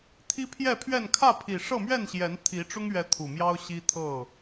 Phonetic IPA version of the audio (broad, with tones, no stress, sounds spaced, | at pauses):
t̪ʰ i˦ pʰ j ɛ˥˨ pʰ ɥ ɛ˥˨ n kʰ ä˥˨ pʰ i˨˩ ʂ ɤ˥˨ m ɥ ɛ˥˨ n ɕ j ɛ˨˦ n t̪ʰ i˨˦ ʈ͡ʂ ʊ˦ ŋ ɥ ɛ˨˦ t̪ʰ u˨˩ m j ɑ˦ ʊ̯ ɕ i˦ t̪ʰ ɤ˥˨